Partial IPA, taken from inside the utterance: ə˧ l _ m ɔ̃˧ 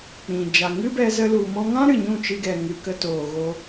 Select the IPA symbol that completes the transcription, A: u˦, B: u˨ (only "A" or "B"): B